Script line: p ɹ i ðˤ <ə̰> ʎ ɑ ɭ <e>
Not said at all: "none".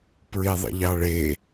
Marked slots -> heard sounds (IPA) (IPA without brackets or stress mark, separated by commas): ə̰, e